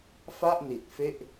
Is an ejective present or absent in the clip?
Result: absent